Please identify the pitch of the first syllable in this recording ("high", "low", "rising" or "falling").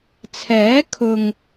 rising